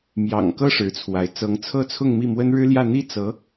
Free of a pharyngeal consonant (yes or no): yes